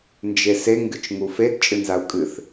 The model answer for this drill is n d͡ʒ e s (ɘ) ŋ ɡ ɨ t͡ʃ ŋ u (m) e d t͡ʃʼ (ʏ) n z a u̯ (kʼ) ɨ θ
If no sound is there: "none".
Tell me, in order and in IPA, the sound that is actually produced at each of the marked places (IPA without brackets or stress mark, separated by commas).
e, f, ɨ, kʼ